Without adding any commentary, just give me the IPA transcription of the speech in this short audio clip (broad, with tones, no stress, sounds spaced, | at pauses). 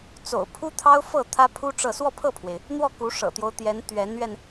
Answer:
t͡s o̰˨˩ ʊ̯ pʰ u˥ t̪ʰ ɑ˥ ʊ̯ f ɤ˥˩ t̪ʰ ä˥ pʰ u˥ ʈ͡ʂ ɤ˥˧ s w ɔ˥˧ pʰ ɤ˥˩ pʰ w e˩ ɪ̯ | n̪ w ɔ˥˩ k u˧˥ ʂ ɤ̰˨˩ t̪ j o˦ ʊ̯ t̪ j ɛ˧˥ n t̪ ɥ ɛ˧˥ n ɥ ɛ˧ n